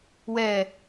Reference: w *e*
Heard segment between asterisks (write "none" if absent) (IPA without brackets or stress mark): ɛ